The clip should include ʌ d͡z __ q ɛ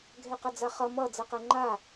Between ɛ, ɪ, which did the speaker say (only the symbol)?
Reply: ɛ